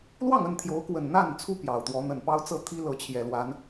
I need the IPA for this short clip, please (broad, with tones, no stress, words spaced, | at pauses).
lwɑ˥˨ŋə˥˨nt̪ʰjo˨˦ʊ̯kwə˨˩n n̪a˥˨nt͡sʰu˦ pjɑ˨˩ʊ̯t̪wɔ˨˦ n̪ə˨˩npɑ˦ʊ̯t͡sɤ˥˨ t̪ʰi˦lɤ˨˦ t͡ɕʰjɛ˨˩lwa˨˦n